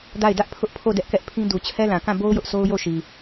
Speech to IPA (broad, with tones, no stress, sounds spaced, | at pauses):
d a˦˨ ɪ̯ d ä˦ ʔ pʰ ʊ˦ ʔ pʰ o˦˨ d ɛ˦ ʔ k ɛ˦ ʔ pʰ ĩ˦ d u˨ t͡ɕʰ ɛ˦ l ã˨ k ã˦˨ b o˦ ʊ̯ j ʊ˦ ʔ sʰ o˦ ʊ̯ j o˦˨ ʃ i˨